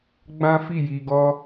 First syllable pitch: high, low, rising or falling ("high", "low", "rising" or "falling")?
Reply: high